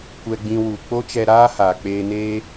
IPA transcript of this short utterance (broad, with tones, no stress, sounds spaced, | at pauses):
kʷ ɛ˧ ɡ͡b ĩ˧ w u˨ k͡p o˦ t͡ʃ ɛ˧ ɾ aː˦ h aː˨ k͡p eː˧ n eː˦